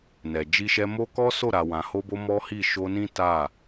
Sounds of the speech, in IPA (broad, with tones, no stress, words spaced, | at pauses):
nɛ˨d͡ʒi˧ʃɛ˧mo˦ kɔ˦so˦˨ɾa˨wã˨ ho˧bo˧ mɔ˦hi˦˨ ʃo˧nĩ˦ ta˦˨